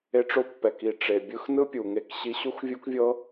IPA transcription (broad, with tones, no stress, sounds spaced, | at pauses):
e˦ ʈ͡ʂ o˦ pː ɛ˨ k i˨ ʈ͡ʂ e˨ bʲ ɯ˦ x n ɯ˦ pʲ u˨ ŋ e˦ k ɕ i˦ ɕ u˦ x vʲ u˦ k vʲ ɤ˦